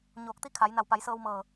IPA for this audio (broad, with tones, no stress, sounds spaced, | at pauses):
ɲ oː˧˩ k̚ t̪ i˥˨ kʰ a˩˧ j n a˧˩ w p a˩˧ j s ɤː˧ w m ɤː˧˩